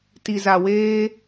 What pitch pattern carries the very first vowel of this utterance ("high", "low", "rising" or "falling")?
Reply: low